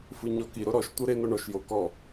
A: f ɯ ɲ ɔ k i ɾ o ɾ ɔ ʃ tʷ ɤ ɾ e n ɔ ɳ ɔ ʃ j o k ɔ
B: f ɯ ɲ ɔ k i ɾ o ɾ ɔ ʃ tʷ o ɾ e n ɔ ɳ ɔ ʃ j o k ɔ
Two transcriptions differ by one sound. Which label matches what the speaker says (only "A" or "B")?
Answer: A